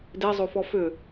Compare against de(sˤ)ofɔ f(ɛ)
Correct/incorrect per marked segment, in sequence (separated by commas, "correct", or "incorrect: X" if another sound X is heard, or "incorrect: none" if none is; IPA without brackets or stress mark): incorrect: zˤ, incorrect: ʏ